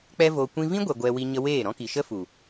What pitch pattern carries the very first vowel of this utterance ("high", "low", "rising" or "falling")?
high